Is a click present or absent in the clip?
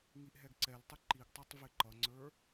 present